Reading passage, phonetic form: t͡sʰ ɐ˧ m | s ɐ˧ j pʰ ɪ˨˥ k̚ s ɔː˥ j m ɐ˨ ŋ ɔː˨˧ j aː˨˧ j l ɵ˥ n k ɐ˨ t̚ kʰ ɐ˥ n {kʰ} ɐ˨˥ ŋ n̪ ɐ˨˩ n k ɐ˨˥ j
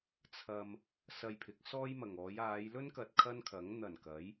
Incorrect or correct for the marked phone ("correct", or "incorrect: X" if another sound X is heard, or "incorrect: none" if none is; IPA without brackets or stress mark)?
correct